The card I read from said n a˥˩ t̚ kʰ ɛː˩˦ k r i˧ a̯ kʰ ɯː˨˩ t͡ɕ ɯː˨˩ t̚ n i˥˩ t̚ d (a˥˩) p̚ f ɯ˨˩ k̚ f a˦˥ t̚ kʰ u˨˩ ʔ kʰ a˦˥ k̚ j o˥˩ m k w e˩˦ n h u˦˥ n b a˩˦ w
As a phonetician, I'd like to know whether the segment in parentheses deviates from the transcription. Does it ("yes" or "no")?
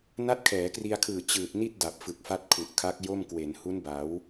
yes